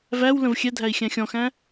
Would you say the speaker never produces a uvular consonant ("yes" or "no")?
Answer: yes